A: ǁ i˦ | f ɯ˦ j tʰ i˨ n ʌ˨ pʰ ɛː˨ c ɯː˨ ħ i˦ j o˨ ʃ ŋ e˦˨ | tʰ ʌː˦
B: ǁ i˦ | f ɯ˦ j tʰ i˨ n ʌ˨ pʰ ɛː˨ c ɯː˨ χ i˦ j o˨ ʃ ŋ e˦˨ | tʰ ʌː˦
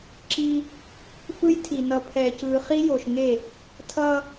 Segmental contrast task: B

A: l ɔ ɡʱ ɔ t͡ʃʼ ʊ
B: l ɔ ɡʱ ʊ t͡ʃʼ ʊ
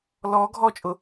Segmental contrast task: A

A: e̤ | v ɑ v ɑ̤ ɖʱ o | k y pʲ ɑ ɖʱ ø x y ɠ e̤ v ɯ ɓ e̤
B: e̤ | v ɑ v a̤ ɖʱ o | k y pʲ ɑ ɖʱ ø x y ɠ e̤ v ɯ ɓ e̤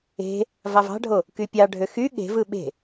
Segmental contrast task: A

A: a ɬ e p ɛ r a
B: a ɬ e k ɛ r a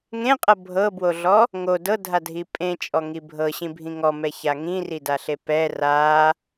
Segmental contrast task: A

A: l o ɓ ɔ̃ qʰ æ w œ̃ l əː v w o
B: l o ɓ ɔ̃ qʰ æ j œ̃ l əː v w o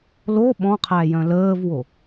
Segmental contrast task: B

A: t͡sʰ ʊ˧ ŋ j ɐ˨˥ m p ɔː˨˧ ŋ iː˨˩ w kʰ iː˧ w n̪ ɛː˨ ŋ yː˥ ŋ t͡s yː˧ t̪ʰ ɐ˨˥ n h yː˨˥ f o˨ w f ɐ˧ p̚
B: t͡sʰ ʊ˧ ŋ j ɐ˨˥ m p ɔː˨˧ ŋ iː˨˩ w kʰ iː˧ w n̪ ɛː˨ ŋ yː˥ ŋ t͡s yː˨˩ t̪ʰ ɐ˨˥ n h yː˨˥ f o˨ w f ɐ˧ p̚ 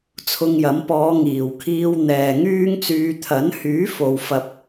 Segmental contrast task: A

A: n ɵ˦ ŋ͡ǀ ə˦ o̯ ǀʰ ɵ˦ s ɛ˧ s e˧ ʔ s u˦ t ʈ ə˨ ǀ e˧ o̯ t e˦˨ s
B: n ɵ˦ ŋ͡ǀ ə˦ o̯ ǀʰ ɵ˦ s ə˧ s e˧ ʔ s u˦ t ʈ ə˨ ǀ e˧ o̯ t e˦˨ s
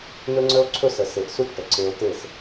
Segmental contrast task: B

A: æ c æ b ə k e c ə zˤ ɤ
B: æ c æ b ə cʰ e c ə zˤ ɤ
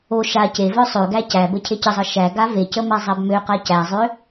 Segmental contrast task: B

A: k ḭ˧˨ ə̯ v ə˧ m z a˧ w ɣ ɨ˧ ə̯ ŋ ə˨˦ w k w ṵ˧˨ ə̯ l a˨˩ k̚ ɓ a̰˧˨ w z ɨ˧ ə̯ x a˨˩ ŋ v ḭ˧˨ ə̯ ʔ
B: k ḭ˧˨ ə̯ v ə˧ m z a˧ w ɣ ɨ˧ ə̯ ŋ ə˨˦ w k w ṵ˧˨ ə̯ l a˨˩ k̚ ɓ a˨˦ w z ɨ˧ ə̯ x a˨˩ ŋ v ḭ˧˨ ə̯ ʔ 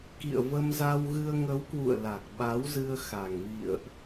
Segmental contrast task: B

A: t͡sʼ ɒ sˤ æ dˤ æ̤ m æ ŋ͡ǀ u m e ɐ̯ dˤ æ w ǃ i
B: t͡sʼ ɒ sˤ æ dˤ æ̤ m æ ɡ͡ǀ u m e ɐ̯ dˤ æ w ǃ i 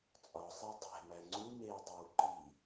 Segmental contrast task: A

